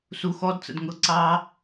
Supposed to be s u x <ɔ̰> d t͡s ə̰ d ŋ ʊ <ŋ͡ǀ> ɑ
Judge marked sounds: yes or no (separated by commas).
no, no